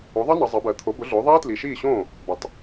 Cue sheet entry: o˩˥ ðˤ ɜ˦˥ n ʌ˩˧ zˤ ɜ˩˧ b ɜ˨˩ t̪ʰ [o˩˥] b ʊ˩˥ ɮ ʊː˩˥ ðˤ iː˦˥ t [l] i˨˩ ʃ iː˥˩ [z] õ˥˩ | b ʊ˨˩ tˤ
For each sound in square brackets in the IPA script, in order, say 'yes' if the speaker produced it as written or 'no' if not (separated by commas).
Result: yes, yes, no